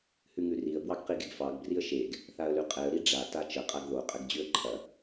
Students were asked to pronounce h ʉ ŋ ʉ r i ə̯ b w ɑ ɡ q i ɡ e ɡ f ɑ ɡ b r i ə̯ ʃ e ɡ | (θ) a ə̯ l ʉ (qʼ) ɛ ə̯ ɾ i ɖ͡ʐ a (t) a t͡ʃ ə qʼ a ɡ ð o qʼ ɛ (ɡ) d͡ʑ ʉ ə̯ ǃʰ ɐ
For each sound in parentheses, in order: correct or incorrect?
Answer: correct, correct, correct, correct

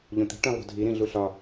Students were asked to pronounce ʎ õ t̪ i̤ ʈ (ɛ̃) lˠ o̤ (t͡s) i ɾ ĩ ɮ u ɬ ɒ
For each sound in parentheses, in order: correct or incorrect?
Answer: incorrect, incorrect

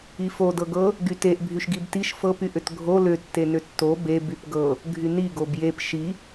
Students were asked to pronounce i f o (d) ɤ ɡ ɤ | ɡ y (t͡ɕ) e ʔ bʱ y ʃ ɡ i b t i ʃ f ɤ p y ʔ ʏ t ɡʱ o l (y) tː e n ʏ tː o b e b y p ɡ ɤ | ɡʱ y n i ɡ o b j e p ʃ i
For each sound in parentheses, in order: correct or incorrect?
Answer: correct, incorrect, incorrect

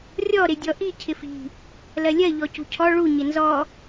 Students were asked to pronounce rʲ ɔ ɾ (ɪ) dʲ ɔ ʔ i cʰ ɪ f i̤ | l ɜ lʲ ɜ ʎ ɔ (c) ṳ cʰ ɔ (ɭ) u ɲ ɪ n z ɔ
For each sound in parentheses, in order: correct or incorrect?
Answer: correct, correct, correct

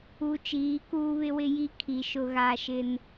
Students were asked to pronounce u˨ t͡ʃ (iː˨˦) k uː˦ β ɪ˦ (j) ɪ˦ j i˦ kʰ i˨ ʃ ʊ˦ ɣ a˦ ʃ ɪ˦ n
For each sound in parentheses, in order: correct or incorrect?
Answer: correct, incorrect

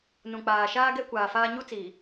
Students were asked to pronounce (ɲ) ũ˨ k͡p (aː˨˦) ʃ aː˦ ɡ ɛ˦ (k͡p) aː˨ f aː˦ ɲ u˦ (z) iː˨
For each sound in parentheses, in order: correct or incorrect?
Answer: incorrect, incorrect, incorrect, incorrect

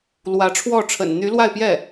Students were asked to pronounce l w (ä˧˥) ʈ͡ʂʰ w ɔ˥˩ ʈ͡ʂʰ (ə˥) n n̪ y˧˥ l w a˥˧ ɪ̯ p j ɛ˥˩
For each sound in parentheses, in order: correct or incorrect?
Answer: correct, incorrect

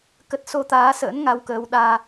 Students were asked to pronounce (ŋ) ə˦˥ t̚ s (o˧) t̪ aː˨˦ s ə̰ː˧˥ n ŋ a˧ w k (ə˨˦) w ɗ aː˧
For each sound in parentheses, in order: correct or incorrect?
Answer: incorrect, correct, incorrect

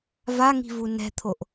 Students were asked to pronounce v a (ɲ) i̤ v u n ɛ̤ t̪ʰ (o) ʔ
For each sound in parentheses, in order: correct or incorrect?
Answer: incorrect, correct

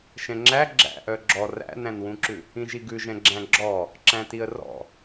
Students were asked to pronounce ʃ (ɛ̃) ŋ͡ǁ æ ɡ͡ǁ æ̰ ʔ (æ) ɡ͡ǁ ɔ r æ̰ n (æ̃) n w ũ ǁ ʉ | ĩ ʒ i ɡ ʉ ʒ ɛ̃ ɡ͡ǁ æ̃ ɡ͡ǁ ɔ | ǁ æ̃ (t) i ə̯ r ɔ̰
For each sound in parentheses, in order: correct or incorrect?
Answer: correct, incorrect, correct, correct

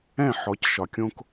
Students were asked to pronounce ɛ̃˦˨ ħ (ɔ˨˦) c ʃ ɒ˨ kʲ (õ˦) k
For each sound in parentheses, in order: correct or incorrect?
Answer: correct, correct

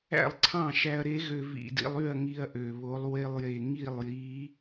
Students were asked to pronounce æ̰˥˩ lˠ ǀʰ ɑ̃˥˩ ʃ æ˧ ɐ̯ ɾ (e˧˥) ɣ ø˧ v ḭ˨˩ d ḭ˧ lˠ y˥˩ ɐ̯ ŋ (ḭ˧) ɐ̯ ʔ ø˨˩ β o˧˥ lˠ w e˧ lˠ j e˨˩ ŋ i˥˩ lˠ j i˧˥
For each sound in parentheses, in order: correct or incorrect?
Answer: correct, incorrect

